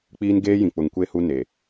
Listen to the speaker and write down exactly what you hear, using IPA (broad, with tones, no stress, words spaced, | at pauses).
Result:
k͡piː˦nɡeː˦jĩ˨k͡pʊ˨ŋ kʷe˦˨ hu˦ ne˨